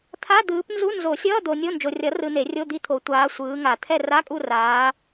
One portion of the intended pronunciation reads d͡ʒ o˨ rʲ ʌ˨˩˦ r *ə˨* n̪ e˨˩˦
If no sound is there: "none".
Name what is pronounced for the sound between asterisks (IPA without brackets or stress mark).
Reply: ɯ˨